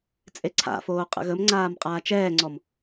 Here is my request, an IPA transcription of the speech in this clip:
t͡sʼ e ǀʰ a̰ f oː qʼ ə̰ ɣ ə m ŋ͡ǀ aː m qʼ aː t͡ʃ ɛː ŋ͡ǀ ɔ m

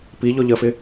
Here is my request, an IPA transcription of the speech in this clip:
p i ʎ ɔ ʎ ə f ɪ

